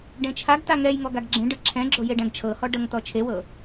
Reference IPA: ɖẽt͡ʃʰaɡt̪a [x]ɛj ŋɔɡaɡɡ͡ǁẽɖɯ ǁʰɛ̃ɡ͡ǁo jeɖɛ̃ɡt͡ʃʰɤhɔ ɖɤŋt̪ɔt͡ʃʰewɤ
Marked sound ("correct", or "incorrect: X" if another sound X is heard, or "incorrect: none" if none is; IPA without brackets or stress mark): incorrect: ŋ